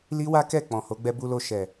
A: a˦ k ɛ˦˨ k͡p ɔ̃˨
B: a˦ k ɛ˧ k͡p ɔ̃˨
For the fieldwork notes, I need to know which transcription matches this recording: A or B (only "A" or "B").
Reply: A